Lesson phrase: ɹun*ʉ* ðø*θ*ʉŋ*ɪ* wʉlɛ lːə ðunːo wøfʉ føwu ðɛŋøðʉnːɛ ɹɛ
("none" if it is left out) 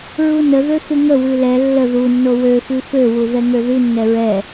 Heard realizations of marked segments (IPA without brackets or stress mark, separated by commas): ə, θ, ə